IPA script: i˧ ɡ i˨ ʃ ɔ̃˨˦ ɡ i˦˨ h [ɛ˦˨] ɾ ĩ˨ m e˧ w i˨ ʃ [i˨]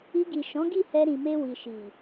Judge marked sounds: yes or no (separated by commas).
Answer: no, yes